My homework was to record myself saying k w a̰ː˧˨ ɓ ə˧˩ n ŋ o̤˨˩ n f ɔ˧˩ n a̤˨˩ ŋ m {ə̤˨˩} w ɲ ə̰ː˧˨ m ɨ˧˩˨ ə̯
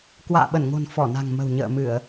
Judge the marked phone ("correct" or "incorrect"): correct